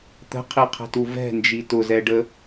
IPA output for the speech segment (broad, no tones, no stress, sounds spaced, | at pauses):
t̪ ə̤ qʰ i qʰ ɛ̤ t u v ɛ̤ n d͡ʒ i t ʊ z ɛ ɖ ə